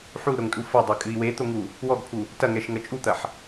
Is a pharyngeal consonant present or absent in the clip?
present